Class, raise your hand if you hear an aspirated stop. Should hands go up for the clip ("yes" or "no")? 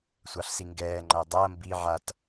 no